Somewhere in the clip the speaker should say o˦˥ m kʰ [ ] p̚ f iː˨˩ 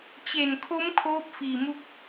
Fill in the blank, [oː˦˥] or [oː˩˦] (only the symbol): oː˦˥